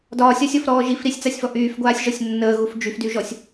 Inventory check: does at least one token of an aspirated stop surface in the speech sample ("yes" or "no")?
no